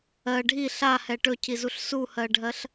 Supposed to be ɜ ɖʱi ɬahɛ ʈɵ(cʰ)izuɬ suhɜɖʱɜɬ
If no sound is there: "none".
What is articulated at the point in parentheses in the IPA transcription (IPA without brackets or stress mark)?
cʰ